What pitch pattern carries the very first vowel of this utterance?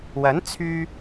rising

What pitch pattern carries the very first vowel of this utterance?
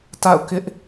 falling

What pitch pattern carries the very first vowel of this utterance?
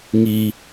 high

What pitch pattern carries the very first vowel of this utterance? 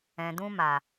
low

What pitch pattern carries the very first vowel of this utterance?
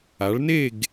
rising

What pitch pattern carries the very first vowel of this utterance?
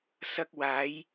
high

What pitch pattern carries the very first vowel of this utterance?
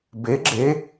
rising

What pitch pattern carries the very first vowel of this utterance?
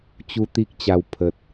high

